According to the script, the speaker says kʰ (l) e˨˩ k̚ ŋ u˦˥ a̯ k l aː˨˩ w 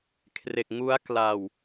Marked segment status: incorrect: r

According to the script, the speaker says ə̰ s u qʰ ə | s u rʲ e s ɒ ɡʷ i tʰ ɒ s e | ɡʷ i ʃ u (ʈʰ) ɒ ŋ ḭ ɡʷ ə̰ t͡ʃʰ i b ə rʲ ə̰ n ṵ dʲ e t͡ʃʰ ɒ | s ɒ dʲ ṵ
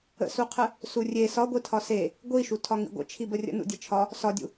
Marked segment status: incorrect: tʰ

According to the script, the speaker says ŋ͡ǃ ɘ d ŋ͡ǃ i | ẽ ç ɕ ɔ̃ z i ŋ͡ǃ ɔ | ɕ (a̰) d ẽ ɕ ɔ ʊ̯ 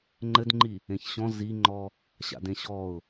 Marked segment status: correct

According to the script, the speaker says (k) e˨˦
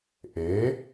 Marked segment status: incorrect: ʔ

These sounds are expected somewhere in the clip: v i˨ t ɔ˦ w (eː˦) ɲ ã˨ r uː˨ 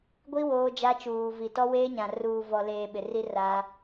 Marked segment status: correct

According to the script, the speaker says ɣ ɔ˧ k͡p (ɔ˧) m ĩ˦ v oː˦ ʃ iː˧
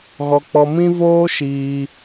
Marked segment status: correct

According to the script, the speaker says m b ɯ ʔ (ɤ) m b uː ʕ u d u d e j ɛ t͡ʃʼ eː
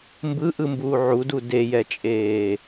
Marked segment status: incorrect: ɯ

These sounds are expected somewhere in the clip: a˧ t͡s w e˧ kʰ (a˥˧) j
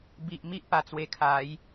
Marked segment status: incorrect: a˨˦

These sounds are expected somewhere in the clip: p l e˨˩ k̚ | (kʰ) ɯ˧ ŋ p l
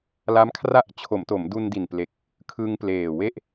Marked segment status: correct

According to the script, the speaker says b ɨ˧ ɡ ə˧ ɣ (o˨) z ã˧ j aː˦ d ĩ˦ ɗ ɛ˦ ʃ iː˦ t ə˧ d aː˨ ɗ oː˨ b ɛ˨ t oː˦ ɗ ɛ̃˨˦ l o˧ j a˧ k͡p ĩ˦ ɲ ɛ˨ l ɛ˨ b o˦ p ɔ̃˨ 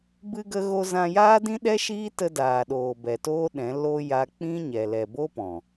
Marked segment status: incorrect: o˧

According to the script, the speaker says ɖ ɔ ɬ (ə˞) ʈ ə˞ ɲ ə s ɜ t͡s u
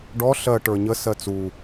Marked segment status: incorrect: ɜ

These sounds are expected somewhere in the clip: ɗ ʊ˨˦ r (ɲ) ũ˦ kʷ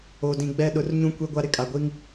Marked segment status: correct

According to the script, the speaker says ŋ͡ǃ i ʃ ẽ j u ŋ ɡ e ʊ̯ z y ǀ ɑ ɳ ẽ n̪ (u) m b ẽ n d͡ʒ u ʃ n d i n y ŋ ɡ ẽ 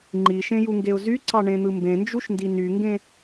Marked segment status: incorrect: ɯ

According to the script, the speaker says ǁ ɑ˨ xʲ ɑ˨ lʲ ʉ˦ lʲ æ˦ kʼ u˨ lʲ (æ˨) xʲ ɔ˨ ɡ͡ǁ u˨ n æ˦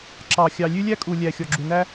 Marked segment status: correct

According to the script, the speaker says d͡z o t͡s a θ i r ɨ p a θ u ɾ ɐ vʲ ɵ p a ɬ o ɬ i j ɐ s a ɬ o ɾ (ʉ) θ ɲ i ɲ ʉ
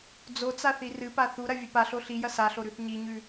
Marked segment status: correct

